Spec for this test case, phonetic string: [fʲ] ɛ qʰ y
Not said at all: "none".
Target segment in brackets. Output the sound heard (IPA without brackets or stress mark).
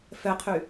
f